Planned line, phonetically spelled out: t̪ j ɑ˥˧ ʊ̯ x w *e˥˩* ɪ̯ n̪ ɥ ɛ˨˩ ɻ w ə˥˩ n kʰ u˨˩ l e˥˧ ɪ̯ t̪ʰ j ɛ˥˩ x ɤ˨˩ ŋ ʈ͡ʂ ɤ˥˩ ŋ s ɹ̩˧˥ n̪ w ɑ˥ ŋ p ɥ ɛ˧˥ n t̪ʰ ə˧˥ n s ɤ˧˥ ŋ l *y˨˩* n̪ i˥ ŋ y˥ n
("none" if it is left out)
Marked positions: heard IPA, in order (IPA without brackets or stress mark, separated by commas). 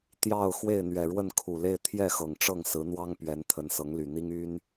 e˥˩, y˨˩